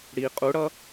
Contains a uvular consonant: yes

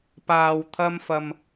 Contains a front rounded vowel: no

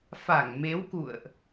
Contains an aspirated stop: no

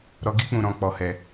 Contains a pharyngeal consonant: no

